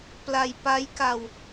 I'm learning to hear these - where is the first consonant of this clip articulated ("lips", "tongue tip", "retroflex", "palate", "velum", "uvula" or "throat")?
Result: lips